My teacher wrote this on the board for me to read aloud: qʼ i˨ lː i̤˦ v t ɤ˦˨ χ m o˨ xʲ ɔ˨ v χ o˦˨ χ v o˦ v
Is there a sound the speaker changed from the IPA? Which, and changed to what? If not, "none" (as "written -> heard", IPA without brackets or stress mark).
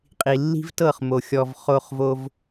none